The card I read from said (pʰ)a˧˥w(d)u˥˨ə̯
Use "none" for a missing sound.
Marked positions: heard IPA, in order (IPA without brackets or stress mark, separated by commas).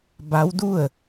b, d